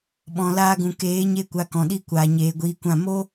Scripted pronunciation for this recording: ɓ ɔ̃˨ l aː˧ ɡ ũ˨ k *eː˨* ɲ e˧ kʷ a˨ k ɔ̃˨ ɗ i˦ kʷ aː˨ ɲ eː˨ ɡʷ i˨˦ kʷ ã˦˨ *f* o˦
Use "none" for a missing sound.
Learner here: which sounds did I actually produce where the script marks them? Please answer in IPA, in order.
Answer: eː˨˦, m

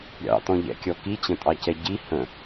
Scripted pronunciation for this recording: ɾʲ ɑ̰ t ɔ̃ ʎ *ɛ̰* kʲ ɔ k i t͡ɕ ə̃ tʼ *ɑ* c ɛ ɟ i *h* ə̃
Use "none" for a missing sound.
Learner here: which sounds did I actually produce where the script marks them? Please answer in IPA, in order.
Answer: ɛ̰, ɑ, h

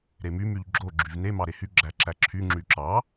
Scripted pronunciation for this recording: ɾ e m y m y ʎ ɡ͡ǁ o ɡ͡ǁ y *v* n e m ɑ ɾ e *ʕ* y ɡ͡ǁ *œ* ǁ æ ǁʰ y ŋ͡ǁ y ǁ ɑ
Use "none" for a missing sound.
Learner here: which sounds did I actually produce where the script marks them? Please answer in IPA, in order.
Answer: v, h, æ

